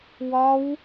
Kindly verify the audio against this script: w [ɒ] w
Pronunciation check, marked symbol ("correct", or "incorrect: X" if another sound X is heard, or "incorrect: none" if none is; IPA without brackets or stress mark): correct